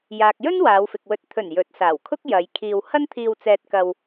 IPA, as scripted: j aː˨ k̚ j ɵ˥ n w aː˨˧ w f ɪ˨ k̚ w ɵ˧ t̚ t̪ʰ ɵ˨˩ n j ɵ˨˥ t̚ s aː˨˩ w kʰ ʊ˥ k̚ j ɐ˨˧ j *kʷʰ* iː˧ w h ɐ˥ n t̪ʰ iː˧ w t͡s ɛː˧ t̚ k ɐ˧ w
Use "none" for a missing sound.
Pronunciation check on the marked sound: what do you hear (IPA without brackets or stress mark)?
kʰ